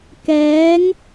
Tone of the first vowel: rising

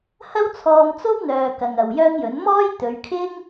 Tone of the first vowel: high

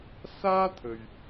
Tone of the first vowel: high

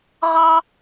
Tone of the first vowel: high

